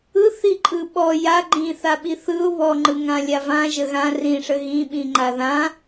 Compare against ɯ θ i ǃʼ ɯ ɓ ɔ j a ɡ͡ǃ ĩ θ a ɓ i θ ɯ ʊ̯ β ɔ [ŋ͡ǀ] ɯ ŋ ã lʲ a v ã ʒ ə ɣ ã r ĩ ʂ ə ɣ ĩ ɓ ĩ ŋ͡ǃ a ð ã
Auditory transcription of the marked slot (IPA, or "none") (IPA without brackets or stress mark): ŋ͡ǃ